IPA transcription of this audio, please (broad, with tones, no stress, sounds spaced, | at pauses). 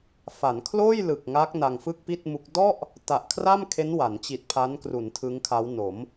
f a˩˦ n kʰ l oː˥˩ j l ɯ˨˩ k̚ ŋ a˦˥ k̚ n a˧ ŋ f ɯ˥˩ k̚ p i˥˩ t̚ m u˦˥ k̚ d ɔ˥˩ ʔ | t a˨˩ ʔ kʰ r a˥˩ m kʰ e˦˥ n w a˩˦ n t͡ɕ i˨˩ t̚ pʰ a˦˥ n k r u˩˦ n tʰ ɯ˦˥ ŋ kʰ a˦˥ w n o˩˦ m